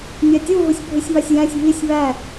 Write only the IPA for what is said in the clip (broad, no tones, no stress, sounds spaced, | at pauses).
mʲ ɑ tʲ u ɦ u sʲ bʱ ɯ sʲ β ɑ sʲ j æ̃ sʲ β i sʲ β æ